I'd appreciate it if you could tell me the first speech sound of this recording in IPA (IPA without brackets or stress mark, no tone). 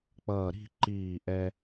k͡p